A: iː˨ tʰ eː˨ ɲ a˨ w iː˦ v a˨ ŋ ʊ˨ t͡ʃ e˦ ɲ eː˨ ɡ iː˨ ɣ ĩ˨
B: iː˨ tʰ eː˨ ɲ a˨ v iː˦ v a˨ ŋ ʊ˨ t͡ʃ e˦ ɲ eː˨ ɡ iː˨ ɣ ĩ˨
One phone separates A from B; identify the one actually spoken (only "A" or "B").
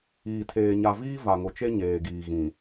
B